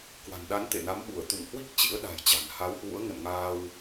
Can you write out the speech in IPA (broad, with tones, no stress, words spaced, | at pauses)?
kwa̤˨˩nɗa˨˦n t̪ḛ˧˨na˨˦mɓu˧˩ə̯ t̪ṵ˧˨ŋhwi˦˥k̚ t͡ɕḭ˧˥ə̯ɗa̤˨˩jt͡ɕa̤˨˩n ha˨˦whwṵ˧˥ə̯ ŋə̰˧˨nŋaː˧w